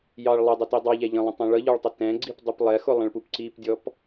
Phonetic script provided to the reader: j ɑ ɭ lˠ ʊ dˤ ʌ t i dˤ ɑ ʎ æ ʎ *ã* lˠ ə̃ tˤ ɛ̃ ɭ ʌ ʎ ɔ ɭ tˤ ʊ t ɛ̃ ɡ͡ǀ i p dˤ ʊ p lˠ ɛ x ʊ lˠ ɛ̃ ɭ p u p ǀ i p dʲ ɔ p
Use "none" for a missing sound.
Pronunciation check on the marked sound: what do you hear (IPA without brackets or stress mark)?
ə̃